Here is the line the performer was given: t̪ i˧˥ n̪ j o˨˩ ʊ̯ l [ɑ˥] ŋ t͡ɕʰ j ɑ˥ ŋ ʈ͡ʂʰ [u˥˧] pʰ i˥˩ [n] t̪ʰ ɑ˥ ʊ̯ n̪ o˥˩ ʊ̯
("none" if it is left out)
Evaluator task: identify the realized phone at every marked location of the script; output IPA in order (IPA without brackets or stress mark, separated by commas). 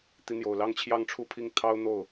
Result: ɑ˥, u˥˧, ŋ